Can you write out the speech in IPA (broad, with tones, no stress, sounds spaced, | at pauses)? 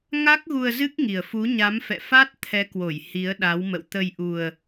ŋ a˦˥ k̚ ɣ u˧ ə̯ z ɨ˦˥ k̚ ŋ i˨˩ ə̯ f u˨˦ ɲ a˨˦ m f ɛ̰˧˨ f aː˦˥ t̚ t̪ʰ ɛ˨˦ k w o˧˩ j h i˨˦ ə̯ ɗ a˨˦ w m ə̰˧˨ w t̪ ə˧ j ʔ u˧ ə̯